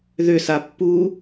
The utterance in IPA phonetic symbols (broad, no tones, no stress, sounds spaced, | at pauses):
ð ʏ s a pː u